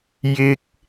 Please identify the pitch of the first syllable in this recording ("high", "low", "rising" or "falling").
high